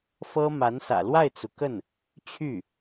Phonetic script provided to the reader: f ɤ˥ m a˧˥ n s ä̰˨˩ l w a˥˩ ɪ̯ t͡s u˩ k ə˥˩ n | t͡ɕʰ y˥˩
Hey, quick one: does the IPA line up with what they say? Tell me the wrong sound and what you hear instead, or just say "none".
none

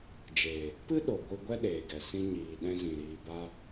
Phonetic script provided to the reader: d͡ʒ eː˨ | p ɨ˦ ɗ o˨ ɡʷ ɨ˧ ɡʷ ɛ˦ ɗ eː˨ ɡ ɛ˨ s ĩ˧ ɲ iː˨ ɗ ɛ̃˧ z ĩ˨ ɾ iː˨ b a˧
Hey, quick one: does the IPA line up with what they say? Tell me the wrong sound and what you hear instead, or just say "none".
none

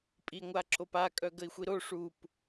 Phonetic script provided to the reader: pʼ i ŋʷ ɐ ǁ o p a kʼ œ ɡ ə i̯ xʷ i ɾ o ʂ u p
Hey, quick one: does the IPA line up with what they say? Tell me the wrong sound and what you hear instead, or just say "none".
ɐ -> a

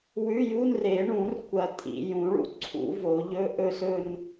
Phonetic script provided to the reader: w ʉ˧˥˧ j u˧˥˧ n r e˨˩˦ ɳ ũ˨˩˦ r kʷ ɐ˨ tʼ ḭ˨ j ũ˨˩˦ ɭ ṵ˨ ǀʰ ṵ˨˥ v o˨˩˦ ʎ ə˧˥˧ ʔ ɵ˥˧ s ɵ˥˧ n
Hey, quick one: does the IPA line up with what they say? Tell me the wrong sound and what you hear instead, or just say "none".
ə˧˥˧ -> ɵ˧˥˧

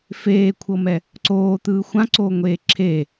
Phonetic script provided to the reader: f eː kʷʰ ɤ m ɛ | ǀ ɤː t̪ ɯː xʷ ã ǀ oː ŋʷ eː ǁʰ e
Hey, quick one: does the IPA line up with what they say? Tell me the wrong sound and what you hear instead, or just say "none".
ɤː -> oː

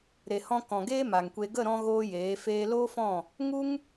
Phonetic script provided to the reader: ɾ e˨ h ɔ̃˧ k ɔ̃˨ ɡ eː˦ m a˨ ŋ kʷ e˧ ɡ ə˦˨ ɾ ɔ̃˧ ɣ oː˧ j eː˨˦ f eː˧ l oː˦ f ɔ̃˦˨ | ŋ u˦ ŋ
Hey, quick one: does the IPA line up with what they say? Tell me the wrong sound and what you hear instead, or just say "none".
none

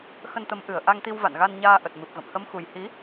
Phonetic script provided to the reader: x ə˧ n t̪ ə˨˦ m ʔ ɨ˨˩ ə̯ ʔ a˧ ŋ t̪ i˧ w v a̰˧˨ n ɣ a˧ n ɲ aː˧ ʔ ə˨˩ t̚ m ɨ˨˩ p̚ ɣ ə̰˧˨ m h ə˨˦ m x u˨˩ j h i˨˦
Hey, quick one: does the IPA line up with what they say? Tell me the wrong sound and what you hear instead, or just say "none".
none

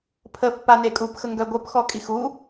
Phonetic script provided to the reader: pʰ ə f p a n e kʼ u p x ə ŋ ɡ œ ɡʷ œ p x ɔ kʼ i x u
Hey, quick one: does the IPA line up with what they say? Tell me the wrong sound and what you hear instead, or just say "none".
none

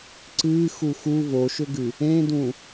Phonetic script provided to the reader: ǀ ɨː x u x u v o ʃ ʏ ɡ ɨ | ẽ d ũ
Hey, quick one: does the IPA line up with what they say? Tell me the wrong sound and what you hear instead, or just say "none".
none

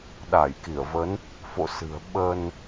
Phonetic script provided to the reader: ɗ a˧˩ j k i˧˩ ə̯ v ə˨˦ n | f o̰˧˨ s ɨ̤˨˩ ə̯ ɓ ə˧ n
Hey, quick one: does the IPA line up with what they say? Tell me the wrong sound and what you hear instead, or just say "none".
none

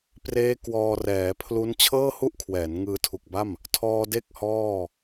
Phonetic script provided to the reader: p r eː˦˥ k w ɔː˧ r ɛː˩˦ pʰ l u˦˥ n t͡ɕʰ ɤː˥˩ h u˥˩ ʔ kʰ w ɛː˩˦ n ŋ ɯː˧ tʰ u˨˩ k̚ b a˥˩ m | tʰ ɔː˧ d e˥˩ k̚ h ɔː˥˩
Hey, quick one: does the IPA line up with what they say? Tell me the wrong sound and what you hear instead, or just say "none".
none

